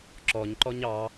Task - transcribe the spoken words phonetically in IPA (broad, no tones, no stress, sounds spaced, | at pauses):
ǁ ɔ ɲ ǃ ɔ ɲ ɑ